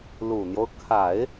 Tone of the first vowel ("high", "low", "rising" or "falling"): low